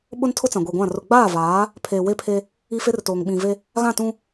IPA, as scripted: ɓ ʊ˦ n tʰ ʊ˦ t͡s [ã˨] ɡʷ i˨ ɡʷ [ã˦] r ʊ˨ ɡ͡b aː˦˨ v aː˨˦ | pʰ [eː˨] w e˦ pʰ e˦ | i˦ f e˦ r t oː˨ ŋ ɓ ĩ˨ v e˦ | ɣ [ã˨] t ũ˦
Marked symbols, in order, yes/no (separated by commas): yes, no, yes, no